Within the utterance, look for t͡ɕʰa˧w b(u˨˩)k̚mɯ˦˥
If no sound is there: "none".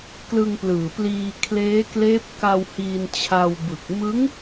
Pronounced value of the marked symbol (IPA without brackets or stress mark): ɯ˨˩